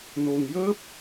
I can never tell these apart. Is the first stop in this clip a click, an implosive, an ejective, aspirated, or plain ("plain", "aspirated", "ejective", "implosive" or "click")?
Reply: plain